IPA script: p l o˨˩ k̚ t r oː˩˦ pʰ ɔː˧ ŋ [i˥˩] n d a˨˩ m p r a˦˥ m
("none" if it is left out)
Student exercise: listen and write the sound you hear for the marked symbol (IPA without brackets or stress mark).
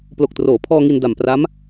i˧